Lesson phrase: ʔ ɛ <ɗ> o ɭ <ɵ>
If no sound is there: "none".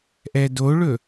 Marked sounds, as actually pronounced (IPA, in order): d, ɵ

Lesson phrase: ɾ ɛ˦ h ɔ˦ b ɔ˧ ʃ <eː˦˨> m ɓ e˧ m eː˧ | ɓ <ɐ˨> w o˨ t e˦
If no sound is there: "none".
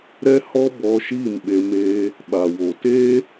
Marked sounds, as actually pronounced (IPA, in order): iː˦˨, a˨

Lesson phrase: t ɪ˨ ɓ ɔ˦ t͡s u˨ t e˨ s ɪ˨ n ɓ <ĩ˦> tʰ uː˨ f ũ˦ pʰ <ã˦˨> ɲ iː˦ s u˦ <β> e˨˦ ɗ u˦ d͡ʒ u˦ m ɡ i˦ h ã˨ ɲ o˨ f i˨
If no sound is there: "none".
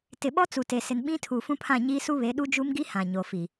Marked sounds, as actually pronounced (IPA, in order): ĩ˦, ã˦˨, β

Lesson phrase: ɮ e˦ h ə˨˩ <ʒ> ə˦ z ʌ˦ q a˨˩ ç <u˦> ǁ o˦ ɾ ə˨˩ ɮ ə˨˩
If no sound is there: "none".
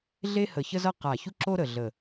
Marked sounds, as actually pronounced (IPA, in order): ç, u˦

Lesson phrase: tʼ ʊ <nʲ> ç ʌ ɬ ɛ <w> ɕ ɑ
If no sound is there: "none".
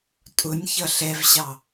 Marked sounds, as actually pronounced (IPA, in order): nʲ, v

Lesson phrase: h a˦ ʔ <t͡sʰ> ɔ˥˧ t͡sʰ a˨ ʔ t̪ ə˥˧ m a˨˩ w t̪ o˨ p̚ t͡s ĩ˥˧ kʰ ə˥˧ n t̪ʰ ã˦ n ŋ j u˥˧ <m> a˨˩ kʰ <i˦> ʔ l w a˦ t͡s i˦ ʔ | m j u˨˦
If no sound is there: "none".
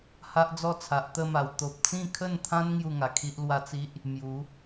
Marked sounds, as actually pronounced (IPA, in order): d͡z, ŋ, i˦

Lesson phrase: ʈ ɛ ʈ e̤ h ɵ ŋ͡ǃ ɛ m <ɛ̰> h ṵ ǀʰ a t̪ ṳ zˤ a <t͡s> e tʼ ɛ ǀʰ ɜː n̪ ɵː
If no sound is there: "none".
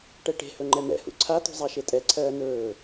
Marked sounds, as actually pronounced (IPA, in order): ɛ̰, ʃ

